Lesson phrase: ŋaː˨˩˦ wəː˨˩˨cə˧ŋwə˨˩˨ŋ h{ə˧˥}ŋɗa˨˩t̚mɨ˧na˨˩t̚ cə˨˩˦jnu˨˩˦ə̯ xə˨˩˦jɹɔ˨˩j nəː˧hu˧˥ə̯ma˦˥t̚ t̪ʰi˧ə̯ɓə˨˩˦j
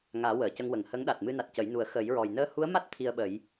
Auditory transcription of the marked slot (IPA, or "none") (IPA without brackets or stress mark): ə˧˥